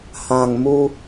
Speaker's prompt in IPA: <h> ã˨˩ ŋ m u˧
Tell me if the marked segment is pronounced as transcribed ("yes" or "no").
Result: yes